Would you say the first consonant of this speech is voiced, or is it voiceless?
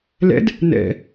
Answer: voiced